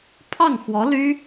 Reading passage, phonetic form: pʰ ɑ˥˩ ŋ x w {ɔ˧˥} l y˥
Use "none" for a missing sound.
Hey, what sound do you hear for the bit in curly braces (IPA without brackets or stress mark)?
ɔ˧˥